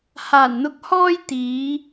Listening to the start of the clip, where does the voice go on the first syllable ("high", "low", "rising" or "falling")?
low